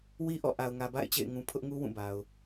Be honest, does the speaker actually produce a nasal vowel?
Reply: yes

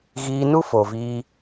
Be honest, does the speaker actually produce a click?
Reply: no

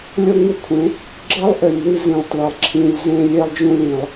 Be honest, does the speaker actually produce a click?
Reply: yes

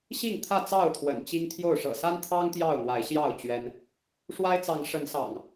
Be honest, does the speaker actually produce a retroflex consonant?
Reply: yes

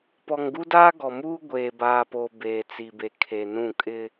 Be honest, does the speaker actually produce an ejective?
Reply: yes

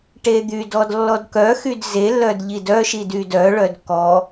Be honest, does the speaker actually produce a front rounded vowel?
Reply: yes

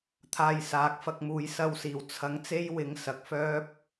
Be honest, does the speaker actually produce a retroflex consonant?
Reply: no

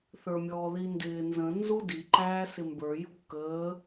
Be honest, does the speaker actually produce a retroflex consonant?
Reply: no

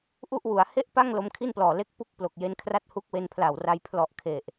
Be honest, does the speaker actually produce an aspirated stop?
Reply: yes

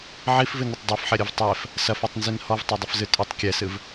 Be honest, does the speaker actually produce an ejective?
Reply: yes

